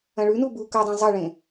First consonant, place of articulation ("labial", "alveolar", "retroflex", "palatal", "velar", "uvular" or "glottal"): retroflex